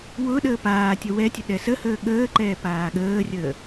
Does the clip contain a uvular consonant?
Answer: no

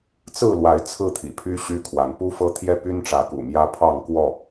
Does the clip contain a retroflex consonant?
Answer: yes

